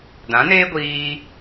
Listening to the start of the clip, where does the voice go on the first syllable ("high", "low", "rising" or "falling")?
rising